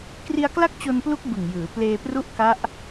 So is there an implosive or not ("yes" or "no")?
no